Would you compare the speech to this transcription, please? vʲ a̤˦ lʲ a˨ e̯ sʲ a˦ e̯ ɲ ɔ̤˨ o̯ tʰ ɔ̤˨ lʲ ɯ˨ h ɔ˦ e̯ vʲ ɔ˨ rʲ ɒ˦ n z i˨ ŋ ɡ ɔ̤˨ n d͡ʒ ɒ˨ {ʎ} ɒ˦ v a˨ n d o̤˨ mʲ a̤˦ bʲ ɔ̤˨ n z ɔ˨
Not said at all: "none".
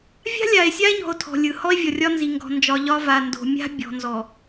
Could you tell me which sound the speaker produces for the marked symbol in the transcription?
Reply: ʎ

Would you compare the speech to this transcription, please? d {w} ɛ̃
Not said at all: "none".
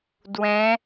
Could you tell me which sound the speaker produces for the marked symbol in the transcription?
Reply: w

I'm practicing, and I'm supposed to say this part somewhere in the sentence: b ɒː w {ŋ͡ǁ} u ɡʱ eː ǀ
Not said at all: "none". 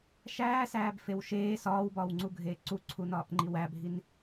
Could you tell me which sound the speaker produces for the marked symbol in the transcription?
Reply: ŋ͡ǀ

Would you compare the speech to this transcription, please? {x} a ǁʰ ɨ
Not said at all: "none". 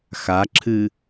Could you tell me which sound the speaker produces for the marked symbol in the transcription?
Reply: x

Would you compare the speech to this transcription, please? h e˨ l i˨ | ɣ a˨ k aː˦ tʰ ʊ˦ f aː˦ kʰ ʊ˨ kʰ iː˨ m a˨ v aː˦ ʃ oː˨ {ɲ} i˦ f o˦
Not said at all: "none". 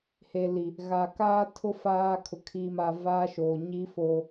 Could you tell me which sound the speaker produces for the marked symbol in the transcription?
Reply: ɲ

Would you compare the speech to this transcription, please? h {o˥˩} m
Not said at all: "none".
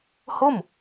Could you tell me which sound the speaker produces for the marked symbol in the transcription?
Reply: o˥˩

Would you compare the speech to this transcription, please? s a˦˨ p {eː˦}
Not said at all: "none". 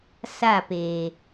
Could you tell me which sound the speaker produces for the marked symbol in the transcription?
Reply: eː˨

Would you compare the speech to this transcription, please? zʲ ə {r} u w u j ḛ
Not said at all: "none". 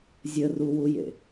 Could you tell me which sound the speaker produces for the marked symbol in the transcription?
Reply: r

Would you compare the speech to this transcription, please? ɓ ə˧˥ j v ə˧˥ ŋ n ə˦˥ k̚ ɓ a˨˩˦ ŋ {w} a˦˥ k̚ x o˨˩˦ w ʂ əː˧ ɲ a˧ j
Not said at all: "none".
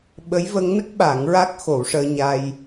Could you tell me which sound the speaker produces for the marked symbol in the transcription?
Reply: ɹ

